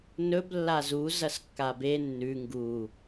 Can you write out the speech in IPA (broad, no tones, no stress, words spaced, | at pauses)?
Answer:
nɵb lːazu zɐskːabe nːʉ ŋɡu